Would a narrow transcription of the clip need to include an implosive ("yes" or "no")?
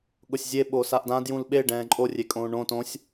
yes